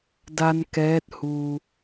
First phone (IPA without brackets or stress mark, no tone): d